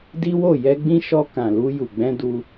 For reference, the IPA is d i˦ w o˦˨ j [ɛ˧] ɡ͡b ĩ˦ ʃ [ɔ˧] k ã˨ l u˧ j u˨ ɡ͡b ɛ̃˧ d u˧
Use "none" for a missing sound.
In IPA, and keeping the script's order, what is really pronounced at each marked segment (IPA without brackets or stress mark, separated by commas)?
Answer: ɛ˧, ɔ˧